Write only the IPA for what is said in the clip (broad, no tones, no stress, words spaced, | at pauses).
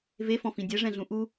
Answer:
vefɔ̃fĩ dʲɛʐɛ̃ɮũ ʔu